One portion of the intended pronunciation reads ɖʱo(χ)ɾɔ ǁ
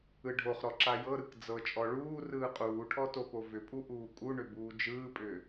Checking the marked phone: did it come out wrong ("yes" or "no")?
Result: no